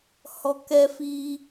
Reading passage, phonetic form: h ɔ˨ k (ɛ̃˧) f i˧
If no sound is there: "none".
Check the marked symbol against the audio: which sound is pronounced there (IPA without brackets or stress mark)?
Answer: ɛ˧